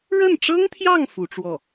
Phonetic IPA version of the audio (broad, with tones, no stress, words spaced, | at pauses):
ɻə˥˩nʈ͡ʂɤ˥ŋt̪ʰjɑ˥˩ŋ fu˧˥ʈ͡ʂwɔ˥˩